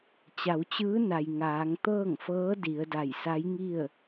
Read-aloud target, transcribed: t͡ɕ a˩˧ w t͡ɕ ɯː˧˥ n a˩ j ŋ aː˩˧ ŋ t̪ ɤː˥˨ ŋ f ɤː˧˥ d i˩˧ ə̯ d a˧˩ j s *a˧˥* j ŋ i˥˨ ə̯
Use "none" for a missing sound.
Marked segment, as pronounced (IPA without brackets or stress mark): a˧˥